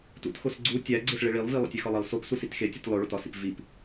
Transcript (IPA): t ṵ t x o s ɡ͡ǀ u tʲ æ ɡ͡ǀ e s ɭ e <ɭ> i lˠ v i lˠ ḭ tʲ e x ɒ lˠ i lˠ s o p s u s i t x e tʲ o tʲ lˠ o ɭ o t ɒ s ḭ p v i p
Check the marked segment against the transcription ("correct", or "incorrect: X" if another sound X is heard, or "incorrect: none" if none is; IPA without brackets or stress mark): correct